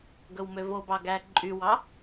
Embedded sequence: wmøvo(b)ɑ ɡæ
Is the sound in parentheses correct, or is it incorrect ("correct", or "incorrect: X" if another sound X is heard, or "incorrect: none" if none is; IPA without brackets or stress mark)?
correct